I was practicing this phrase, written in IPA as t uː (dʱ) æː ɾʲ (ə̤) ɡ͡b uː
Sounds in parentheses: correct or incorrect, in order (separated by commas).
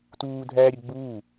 correct, incorrect